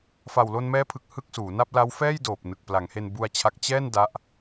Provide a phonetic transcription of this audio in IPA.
f a˨˩ w l o˧ n m ɛː˦˥ pʰ ɯ˨˩ k̚ h ɯ˥˩ k̚ s uː˩˦ n a˥˩ p̚ l a˦˥ w f ɛː˥˩ j d oː˨˩ p̚ n ɯ˨˩ k̚ p l a˩˦ ŋ h e˧ n b u˧ a̯ t͡ɕʰ a˦˥ k̚ t͡ɕ ɛː˥˩ n d a˦˥ ʔ

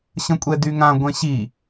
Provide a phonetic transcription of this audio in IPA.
ɕ ə̃ kʷʼ ɛ d y ŋ ã ɡʷ ɛ̃ ɕ i

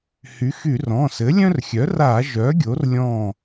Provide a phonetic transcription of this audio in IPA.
h y˩˥ x y˧˩˧ r ɔ̃˩˧˩ s ɘ˩˥ lʲ œ̃˦ r xʲ œ˩˥ r a˧˩˧ ʒ œ˩˥ ɡʲ o˩˥ r lʲ ɔ̃˧˩

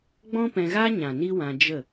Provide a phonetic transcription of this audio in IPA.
ɡ͡b ɔ̃˦ p ɛ̃˧ ɣ a˦ ɲ ã˨ n i˦ w ã˧ d͡ʒ ə˦˨

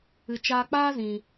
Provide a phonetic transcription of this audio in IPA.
ɨ˨ t͡ʃ aː˧ k͡p aː˦ z ĩ˨

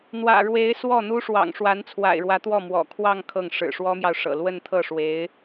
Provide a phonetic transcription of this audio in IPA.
n̪ w ä̰˨˩ ɻ w e˧˥ ɪ̯ s w ɔ˥˩ n̪ u˥ ʂ w ɑ̰˨˩ ŋ ʂ w a˧˥ n t͡sʰ w a̰˨˩ ɪ̯ ɻ w ä˧˥ t̪ w ɔ˥˩ m w ɔ̰˨˩ kʰ w ɑ˥˧ ŋ kʰ ɤ˥˩ ŋ ʂ ɻ̩˨˩ ʂ w ɔ˥ m j ɑ˨ ʊ̯ ʂ ɤ̰˨˩ l w ə˥˧ n t̪ʰ ɤ˥˩ ʂ w e˧˥ ɪ̯

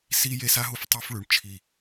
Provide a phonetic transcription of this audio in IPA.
s i˦ j e˦ s a˦ ɦ u˦ f tˤ u˦ f ɭ ʉ˨ ɳ t͡ʃʰ i˦˨

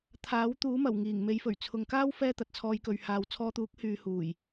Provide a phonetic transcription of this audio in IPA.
t̪ʰ aː˨˥ w t̪ uː˨˥ m ɐ˨˩ w ŋ iː˨˩ ŋ m e˨˧ j f ɵ˨˩ ɥ t͡sʰ ʊ˨ ŋ k aː˥ w f ɛː˥ t̪ ɐ˨ t̚ t͡sʰ ɔː˧ j k ɵ˨ ɥ h aː˨ w t͡sʰ ɔː˧ t̪ uː˨˥ k̚ h yː˧ h uː˨˩ j

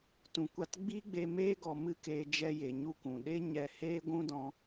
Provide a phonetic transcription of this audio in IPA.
t ũ˨ kʷ a˧ t ɡ͡b iː˦ ɡ͡b e˧ m eː˧ ɡ ɔ˨ m ɨ˦ k eː˧ d͡ʒ ɛ˧ j e˨ ɲ u˧ k ũ˨ ɗ e˦ ɲ ɛ˧ h eː˦ ɡʷ ũ˦ d ɔ̃˧

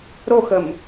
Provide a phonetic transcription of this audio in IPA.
ɾ o x ə m

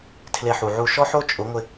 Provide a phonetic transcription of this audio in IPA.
tʰ l e˧ ħ u˨ ʕ u˦˨ ʃ ɔ˦ ħ o˦ t͡ʃʼ ʊ˨˦ ŋʷ ɪ˧

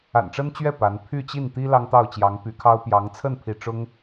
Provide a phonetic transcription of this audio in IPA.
a̰˨˩ n ʈ͡ʂ ə˥ n t͡ɕ ɥ ɛ˥˩ p a˧˥ n pʰ y˥˧ t͡ɕ i˥˩ n t̪ i˥ l ɑ˥ ŋ t̪ ɑ˥˩ ʊ̯ t͡ɕ j ɑ˧˥ ŋ p y˧˥ kʰ ɑ˥ ʊ̯ p j ɑ˧˥ ŋ t͡sʰ ə˥˧ n pʰ i˥˩ ʈ͡ʂ ʊ˥ ŋ

